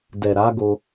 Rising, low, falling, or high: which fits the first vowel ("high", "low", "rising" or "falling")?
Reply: low